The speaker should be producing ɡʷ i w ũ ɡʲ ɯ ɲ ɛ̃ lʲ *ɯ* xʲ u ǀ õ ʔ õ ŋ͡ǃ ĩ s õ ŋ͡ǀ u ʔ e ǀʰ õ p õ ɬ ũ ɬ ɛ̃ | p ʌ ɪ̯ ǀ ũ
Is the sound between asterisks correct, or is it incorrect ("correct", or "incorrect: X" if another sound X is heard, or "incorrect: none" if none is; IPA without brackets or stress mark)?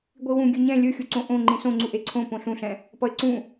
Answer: correct